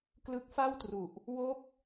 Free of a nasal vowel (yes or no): yes